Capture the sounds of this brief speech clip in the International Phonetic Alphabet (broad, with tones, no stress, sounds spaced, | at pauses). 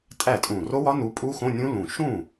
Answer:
tʼ æ˥˩ tʼ ũ˧˩ r o˦˥ w ɒ˦˥ n u˨˦ pʼ u˦˥ x õ˧˥˧ nʲ ũ˦˥ l ũ˧˩ ʃ ũ˥˩